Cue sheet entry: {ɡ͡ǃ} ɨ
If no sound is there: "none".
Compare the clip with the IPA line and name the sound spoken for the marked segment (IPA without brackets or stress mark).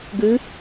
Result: ɡ